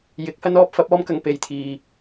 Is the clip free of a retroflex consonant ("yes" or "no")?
yes